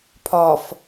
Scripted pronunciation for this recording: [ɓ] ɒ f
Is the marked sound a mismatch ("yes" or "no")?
yes